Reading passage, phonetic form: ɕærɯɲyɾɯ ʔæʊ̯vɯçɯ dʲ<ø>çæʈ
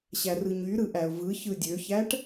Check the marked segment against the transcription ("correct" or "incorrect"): correct